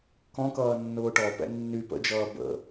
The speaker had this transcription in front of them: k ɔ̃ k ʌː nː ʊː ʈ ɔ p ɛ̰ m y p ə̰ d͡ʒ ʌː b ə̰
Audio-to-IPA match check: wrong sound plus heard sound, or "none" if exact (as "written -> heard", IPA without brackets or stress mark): m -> nː